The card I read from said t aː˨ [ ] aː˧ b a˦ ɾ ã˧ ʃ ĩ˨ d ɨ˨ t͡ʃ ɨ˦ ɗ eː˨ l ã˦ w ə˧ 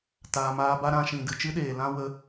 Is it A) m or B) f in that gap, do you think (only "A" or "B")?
A